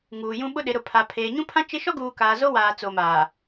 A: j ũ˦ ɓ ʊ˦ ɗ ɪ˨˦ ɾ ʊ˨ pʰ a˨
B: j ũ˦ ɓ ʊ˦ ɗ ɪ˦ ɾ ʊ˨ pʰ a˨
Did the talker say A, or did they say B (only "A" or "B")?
A